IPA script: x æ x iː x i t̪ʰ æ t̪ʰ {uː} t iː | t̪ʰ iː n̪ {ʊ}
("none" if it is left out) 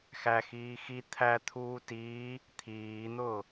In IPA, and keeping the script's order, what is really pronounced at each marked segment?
uː, ʊː

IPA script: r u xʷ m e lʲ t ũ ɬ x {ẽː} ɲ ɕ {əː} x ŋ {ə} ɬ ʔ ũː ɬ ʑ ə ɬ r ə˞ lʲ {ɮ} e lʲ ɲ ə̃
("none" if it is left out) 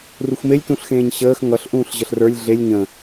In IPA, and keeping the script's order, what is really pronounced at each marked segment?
ẽː, əː, ʌ, ɮ

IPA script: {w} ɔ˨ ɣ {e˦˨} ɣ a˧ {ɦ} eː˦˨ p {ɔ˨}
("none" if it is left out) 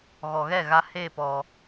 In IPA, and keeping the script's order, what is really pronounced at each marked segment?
ɣ, ɛ˦˨, h, ɔ˨

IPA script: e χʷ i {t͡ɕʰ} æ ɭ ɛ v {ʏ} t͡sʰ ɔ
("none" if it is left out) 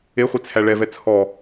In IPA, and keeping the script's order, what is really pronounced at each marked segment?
t͡sʰ, ɛ

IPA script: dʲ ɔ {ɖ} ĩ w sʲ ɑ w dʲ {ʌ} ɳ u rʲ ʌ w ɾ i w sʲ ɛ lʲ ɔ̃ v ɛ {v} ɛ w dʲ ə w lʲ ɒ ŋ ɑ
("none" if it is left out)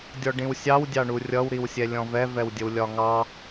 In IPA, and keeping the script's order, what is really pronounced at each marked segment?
ɖ, ɑ, v

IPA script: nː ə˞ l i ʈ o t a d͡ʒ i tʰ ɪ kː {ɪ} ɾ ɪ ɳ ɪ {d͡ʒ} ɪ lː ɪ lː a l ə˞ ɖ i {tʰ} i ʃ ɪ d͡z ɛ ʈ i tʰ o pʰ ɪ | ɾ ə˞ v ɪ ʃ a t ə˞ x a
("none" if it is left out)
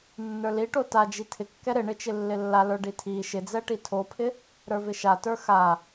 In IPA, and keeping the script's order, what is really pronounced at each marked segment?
ɛ, t͡ʃ, tʰ

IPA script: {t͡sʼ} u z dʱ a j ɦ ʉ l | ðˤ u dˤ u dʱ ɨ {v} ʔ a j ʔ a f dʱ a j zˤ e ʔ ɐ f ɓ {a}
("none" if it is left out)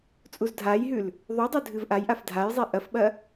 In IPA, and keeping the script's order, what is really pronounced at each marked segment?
t͡sʼ, v, ɐ

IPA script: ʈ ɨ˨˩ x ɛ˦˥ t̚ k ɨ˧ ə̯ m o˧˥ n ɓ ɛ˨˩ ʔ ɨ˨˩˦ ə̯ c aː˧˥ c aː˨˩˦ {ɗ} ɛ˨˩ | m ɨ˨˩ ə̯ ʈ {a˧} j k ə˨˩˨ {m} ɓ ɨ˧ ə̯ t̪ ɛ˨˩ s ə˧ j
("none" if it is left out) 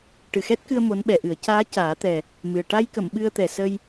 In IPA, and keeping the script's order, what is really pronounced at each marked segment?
t̪, a˧, m

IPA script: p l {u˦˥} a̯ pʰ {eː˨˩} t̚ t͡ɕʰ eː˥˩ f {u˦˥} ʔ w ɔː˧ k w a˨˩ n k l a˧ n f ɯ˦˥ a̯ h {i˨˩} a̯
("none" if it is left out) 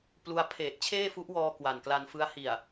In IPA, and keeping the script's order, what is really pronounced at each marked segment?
u˦˥, eː˨˩, u˦˥, i˨˩

